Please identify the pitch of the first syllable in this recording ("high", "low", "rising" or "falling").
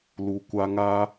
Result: low